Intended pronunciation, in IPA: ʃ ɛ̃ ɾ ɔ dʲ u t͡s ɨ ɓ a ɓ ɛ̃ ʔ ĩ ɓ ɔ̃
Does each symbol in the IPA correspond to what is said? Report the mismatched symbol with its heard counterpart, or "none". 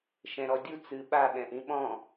none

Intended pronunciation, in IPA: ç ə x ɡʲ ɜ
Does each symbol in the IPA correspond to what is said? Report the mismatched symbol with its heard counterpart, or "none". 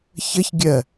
x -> ç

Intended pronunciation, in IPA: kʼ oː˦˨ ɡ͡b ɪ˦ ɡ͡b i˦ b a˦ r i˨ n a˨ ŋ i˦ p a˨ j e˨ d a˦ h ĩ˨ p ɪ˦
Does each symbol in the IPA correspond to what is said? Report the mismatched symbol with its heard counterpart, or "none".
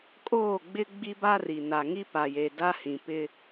none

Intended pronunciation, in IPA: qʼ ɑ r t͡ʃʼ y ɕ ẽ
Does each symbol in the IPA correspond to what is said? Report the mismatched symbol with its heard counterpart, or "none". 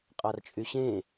none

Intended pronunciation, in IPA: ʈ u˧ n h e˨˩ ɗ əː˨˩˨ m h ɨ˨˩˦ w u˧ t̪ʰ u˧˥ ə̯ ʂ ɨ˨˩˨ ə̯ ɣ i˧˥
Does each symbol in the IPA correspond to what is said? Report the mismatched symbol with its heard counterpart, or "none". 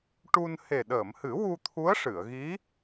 none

